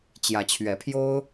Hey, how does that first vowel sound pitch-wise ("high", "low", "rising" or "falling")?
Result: rising